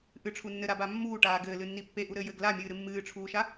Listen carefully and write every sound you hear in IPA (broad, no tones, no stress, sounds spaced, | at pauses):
ʔ ɨ ʈ͡ʂʰ u nː ɘ ɾ a b a mː uː ʈ aː ɡ ɘː l ɨ nː i pː e ʔ u ɾ ɘː j ɘː ɡ l a mʲ ɨː ɾ ɨ mː ɨː ʈ͡ʂʰ uː ʃ a